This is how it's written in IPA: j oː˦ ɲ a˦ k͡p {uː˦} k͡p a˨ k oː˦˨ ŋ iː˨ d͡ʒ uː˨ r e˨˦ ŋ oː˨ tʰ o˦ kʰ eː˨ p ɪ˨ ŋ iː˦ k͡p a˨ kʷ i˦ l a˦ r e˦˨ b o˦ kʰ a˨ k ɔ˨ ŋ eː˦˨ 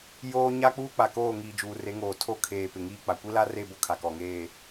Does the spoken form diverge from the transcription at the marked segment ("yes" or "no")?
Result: no